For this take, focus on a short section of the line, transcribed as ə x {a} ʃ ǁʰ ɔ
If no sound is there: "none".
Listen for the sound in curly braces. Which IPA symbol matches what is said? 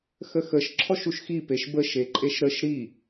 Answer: ə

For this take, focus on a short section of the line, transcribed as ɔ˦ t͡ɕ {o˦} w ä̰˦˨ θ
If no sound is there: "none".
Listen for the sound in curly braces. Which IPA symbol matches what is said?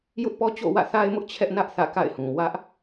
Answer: o̰˦˨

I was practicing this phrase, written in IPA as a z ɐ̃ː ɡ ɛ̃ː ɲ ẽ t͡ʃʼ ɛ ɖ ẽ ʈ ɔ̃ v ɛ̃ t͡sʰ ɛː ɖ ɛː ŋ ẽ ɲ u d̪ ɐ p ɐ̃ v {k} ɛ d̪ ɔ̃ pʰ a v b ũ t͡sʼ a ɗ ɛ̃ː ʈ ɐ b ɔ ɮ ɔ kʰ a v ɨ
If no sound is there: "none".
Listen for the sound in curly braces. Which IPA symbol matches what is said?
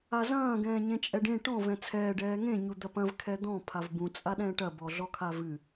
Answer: kʰ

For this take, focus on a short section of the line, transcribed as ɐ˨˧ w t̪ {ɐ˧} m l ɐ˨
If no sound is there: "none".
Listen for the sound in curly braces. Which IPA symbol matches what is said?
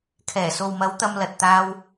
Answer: ɐ˧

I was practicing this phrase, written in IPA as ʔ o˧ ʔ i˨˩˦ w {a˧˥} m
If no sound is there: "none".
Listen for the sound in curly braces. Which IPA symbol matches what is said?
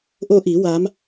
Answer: a˧˥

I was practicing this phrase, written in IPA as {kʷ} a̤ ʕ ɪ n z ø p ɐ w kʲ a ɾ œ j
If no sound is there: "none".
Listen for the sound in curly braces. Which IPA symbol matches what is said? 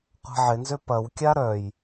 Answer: qʷ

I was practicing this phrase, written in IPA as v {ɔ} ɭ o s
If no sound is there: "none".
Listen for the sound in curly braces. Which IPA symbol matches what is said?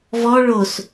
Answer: ɔ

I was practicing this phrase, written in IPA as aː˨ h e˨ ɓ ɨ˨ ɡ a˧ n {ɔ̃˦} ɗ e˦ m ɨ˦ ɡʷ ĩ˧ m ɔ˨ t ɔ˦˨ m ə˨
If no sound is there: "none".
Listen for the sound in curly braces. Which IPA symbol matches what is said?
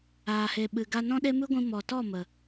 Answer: ɔ̃˦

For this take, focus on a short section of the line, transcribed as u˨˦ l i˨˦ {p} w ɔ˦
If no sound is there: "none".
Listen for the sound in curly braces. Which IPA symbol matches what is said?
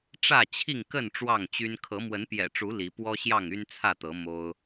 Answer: p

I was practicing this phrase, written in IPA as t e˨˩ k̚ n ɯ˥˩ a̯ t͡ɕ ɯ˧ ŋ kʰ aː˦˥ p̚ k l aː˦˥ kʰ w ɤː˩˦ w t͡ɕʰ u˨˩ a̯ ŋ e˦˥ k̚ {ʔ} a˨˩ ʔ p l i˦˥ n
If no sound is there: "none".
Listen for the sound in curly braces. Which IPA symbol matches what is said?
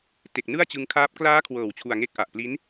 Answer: ʔ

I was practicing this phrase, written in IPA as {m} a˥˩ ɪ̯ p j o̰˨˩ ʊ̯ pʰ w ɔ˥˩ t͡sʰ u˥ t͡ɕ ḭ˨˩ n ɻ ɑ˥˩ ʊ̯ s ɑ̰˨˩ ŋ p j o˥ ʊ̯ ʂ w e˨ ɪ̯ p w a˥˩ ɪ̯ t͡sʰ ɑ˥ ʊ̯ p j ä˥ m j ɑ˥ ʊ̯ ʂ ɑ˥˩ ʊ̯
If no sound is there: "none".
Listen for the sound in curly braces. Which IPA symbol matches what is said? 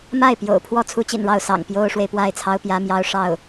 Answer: m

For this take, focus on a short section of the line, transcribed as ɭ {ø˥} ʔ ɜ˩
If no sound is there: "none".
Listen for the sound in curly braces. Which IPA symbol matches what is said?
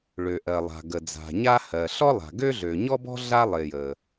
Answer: ø˩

